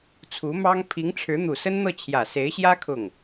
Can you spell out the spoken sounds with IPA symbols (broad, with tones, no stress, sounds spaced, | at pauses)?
t͡sʰ u˧˥ m ɑ˥ ŋ pʰ i˧˥ ŋ ʈ͡ʂʰ ɻ̩˧˥ n̪ u˨˩ s ə˥ n n̪ ɤ˥˩ t͡ɕʰ j ä˨˩ s e˧˥ ɪ̯ ɕ j ä˥ kʰ ʊ˥˩ ŋ